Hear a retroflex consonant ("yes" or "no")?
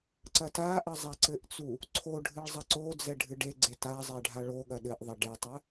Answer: yes